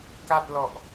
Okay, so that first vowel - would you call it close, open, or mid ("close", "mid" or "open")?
open